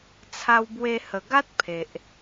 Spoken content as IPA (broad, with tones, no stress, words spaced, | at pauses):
t͡sʰa˧wbwe˧ hə˨˩ɡa˦t̚ pʰe˨ʔ